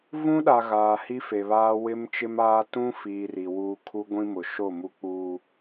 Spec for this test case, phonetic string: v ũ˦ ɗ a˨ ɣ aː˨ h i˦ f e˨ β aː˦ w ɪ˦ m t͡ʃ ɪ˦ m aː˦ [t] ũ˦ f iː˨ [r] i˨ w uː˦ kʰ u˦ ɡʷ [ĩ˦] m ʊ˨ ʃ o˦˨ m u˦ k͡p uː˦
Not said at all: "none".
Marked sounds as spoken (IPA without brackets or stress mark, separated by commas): t, r, ĩ˦